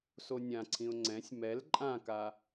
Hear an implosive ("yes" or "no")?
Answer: no